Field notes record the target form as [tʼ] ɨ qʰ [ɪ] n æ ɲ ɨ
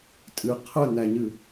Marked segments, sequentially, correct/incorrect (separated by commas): correct, incorrect